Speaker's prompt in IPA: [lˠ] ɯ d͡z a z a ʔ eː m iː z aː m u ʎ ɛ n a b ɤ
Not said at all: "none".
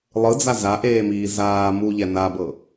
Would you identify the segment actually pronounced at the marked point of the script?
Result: lˠ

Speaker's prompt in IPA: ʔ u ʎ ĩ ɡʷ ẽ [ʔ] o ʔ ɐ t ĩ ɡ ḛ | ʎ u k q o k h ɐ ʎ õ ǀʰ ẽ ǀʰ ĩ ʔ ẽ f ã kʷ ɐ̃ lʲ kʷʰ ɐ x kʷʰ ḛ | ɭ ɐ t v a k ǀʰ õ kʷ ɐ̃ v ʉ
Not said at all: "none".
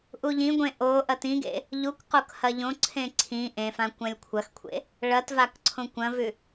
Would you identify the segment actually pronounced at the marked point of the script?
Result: ʔ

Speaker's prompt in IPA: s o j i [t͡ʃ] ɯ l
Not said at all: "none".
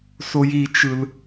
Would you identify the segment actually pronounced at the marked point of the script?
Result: t͡ʃ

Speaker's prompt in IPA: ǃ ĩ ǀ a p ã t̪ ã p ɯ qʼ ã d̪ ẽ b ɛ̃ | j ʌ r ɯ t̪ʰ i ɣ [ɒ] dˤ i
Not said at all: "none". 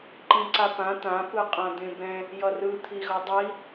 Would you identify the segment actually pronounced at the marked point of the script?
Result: ʌ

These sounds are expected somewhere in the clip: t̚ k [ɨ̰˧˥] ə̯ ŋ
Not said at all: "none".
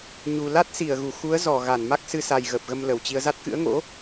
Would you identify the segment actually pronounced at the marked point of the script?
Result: ɨ̰˧˥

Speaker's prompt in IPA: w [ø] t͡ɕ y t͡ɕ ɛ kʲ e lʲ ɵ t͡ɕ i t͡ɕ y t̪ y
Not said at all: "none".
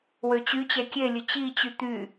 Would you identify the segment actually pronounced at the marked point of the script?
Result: ø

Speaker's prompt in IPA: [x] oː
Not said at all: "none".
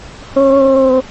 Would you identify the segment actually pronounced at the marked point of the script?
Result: h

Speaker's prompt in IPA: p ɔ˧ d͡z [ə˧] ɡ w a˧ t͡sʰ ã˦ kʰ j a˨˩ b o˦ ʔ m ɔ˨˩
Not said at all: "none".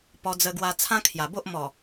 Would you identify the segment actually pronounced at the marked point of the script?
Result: ə˧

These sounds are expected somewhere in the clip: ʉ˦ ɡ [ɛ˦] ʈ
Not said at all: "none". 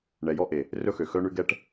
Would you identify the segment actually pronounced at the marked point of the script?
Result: ɛ˦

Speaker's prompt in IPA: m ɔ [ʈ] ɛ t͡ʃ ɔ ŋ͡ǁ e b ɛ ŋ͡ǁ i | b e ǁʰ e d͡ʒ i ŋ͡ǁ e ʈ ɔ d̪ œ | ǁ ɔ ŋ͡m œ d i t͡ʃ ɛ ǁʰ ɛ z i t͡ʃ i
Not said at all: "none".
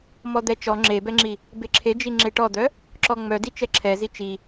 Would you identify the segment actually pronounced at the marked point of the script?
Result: d̪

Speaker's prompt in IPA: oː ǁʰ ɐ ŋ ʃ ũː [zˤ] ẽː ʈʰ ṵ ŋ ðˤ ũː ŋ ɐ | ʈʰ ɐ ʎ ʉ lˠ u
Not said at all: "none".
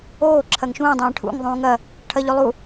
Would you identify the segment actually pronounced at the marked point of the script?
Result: dˤ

